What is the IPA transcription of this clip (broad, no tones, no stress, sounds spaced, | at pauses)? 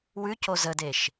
w ʉ c o z ə d e ʃ